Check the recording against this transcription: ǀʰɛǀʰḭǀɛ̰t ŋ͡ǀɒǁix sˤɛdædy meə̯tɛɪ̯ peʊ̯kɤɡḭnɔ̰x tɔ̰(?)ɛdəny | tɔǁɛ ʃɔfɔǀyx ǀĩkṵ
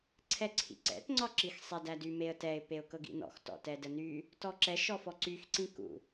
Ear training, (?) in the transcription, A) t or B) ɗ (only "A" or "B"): A